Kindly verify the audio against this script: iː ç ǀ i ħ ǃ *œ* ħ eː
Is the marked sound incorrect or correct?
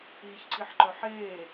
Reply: correct